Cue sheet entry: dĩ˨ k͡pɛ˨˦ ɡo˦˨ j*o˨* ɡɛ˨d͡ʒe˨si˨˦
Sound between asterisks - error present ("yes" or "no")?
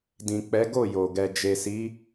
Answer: no